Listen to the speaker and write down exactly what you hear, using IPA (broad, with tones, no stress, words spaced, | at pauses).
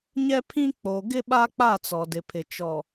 ɲɛ˦pʰĩ˦ k͡po˨ɡɪ˦ ɓa˦ k͡pa˦˨t͡sɔ˨dɪ˨pʰɪ˨ t͡ʃɔ˨